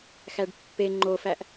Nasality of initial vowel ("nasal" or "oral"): oral